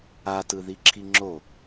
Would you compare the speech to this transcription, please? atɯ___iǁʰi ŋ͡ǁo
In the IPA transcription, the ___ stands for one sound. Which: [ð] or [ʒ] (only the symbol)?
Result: ð